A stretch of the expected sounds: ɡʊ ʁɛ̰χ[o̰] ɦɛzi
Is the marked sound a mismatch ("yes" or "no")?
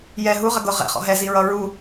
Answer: yes